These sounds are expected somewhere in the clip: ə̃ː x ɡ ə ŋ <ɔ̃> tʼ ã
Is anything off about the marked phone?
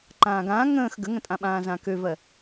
yes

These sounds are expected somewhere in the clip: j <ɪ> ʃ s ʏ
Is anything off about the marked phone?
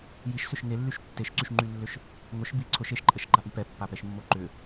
yes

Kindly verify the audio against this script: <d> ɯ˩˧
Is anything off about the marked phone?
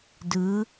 no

